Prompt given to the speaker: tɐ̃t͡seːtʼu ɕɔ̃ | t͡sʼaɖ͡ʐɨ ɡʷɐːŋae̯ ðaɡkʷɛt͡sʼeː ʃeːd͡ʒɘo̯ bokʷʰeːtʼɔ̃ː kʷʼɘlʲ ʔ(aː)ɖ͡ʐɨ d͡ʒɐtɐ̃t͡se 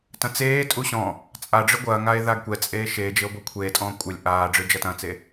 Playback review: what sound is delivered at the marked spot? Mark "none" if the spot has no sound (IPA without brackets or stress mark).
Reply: aː